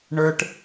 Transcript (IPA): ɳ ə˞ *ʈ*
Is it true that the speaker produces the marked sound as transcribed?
yes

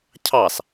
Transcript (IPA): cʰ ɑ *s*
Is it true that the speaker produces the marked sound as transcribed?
yes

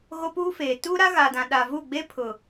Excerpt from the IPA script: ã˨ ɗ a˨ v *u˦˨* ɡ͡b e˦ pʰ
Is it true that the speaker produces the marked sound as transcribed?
yes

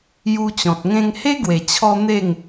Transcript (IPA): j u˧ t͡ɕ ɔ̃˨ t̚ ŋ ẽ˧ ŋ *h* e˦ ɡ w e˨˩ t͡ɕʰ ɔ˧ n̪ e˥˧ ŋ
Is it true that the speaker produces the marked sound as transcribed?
yes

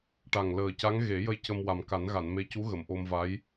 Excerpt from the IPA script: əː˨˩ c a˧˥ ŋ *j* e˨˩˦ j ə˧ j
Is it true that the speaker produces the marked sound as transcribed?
no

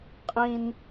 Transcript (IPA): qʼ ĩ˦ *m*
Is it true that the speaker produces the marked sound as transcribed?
no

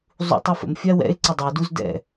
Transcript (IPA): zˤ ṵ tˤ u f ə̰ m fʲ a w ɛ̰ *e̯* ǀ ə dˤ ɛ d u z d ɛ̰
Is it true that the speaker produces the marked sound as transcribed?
yes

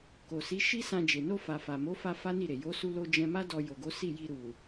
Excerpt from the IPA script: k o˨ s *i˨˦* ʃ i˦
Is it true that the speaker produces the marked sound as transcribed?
yes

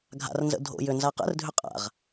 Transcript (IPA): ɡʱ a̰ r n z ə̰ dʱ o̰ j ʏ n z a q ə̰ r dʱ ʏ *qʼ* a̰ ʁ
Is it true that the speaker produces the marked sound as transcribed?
yes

